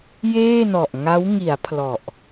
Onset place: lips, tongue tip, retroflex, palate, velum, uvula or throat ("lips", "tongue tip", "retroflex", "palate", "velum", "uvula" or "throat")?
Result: palate